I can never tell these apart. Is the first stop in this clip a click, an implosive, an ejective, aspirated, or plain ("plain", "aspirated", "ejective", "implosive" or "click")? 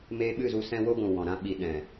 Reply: implosive